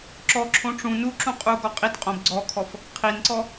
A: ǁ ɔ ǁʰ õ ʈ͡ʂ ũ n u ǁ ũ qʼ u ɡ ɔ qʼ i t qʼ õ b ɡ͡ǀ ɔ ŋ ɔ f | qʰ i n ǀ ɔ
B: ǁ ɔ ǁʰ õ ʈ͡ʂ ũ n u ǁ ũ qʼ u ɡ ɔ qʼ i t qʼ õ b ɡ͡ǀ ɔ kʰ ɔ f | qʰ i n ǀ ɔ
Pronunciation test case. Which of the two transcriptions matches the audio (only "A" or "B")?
B